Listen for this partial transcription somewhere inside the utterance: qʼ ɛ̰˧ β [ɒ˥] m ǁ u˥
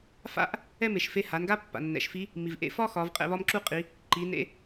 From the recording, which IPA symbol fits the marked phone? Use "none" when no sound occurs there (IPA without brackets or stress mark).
ɒ˥